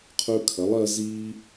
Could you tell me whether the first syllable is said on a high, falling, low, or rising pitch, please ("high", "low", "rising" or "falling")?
high